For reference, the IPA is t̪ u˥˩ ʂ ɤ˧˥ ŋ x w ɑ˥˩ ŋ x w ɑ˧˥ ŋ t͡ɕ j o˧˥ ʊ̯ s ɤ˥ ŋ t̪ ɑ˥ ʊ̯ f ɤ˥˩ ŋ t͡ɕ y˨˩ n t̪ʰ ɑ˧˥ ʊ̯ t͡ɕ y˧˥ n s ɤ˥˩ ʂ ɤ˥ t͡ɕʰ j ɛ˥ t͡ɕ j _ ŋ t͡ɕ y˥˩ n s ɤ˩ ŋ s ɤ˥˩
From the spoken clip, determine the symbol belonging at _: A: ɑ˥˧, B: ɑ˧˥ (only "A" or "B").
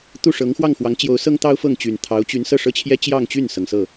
A